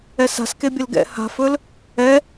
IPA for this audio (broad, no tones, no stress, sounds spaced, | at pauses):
ɛ s a̤ s k e bʲ ə l ɡ ɛ̰ h a̤ f ɵ l | ɛ